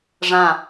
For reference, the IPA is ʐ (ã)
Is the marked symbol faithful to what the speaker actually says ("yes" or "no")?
yes